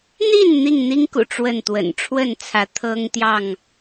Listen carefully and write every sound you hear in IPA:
n̪ i˥˨ n n̪ i˥˨ ŋ n̪ i˦ ŋ k ṵ˨˩ ʈ͡ʂ w ə˥˨ n t̪ w ə̰˨˩ n ʈ͡ʂʰ w ə˥˨ n t͡sʰ ä˨˦ t̪ʰ ɤ˦ ŋ t̪ j ɑ˥˨ ŋ

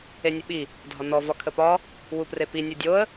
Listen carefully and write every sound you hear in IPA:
e nʲ ə ɓ i | dʱ ɒ n ɔ v ɒ kʰ ə p ɒ | w u p r e p i nʲ u dʲ o ə̯

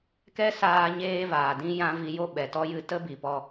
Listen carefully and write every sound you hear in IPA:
k ɛ˦ s aː˧ ɲ eː˦ v aː˨ d ĩ˦ j ã˦ v i˧ j o˦ ɓ ɛ˨ t ɔ˦ j ɨ˦ t ə˦ b i˨ p ɔ˧

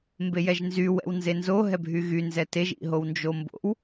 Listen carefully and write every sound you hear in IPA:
m b e j ɛ ʒ n z y w ɛ̰ w n z e n z o ɦ ɛ bʱ y ɣ y n z ɛ t e ʒ ḭ ɦ o w n d͡ʒ o m b o̰ w

